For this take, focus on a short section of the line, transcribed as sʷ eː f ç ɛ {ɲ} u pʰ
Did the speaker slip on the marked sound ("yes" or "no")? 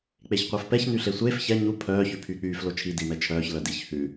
no